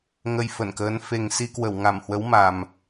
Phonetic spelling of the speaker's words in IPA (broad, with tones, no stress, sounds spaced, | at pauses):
ŋ ə˧ j f ə˧˩ n k əː˨˦ n f e˨˩ ŋ s i˧ k w ə˧˩ w ŋ a˧˩ m h w ə˨˦ w m a˨˩ m